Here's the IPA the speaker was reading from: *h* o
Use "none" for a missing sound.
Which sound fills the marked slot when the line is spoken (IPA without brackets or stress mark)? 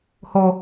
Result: h